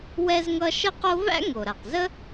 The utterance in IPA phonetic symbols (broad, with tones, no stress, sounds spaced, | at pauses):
w ɛ˧ z ŋ ʌ˧ ʃ ə˥ q o˥ v æ̰˥ ŋ o˩ ɾ a˩ q z ə˥